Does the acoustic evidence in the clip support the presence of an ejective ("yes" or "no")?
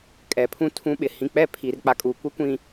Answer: yes